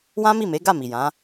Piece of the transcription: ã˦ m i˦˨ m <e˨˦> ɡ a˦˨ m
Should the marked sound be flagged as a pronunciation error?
no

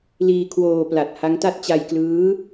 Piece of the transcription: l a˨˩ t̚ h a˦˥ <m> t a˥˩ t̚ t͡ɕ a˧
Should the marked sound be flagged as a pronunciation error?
yes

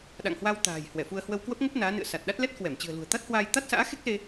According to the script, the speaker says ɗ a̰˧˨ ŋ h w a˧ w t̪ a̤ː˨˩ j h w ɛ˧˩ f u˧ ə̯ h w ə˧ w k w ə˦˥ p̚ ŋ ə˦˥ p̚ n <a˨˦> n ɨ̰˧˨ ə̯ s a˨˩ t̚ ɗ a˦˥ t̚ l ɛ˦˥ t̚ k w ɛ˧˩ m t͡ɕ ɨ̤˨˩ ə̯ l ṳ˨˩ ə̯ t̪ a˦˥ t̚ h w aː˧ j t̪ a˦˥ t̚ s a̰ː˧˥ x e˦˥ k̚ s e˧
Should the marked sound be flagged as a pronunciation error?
yes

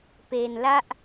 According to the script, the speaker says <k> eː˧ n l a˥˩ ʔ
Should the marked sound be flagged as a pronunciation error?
yes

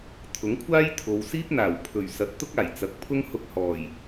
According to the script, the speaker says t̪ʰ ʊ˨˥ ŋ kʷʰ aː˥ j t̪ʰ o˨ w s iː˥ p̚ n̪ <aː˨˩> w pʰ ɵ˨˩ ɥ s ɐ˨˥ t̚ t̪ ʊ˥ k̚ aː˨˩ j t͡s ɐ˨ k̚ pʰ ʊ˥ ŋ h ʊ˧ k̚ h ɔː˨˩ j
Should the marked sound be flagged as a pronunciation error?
no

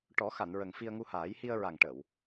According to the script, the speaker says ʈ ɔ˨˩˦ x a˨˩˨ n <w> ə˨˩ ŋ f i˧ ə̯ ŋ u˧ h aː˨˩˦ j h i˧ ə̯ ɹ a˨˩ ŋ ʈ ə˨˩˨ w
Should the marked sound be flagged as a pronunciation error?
yes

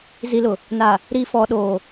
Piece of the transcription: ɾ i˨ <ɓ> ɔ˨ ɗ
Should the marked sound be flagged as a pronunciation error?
yes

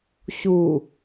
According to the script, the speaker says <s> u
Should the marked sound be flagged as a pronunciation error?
yes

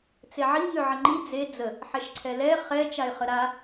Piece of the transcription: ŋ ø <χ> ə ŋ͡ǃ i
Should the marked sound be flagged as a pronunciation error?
yes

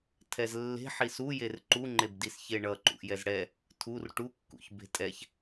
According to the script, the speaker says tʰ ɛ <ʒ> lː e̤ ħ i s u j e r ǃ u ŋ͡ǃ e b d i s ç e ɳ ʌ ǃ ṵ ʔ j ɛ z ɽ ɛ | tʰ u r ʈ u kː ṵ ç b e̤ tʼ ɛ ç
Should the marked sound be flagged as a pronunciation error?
yes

